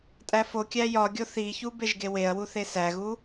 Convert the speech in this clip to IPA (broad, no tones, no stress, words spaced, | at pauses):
tʼæfokʲæ jɒɡʲo θiçu beʒɡeweɐ̯wu θesæɣu